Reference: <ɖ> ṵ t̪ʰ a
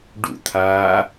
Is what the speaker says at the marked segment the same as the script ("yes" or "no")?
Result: yes